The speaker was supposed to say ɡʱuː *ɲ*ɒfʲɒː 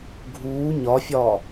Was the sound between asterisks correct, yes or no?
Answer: yes